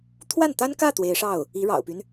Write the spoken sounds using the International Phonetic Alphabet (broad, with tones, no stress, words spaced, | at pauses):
t̪ʰwa˥˩nt̪a˥nkä˥˩ t̪we˧˥ɪ̯ʂɑ˥˩ʊ̯ | i˧˥ɻɑ̰˨˩ʊ̯py˦n